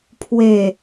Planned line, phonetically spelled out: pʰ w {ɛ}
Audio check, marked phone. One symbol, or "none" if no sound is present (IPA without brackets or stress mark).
e